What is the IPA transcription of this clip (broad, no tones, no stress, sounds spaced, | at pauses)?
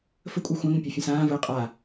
f ə kʷʼ a xʷ ã ŋ ə̃ pʲ ɒ fʲ ə̃ s ãː v əː qʼ a